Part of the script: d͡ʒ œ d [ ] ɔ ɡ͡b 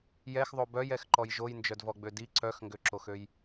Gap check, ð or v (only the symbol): v